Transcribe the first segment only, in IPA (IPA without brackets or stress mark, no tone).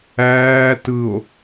æː